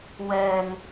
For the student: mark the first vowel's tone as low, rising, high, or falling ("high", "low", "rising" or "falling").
low